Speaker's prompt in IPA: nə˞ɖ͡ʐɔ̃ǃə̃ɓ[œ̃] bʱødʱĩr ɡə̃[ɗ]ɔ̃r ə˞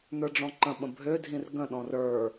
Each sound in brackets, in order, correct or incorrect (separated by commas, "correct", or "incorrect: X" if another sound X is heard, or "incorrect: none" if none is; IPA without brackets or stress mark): incorrect: ə̃, correct